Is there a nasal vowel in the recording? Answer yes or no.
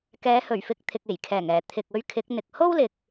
no